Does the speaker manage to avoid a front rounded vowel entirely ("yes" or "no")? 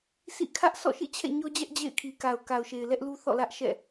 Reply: yes